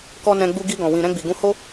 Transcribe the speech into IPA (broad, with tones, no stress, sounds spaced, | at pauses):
k ɔ˧ n ɛ̃˧ ɡ͡b u˧ ɡ i˧ ɡ ɔ̃˨ w ĩ˨ ɾ ɛ̃˧ ɡ͡b i˨ ɡ ũ˨˦ h o˦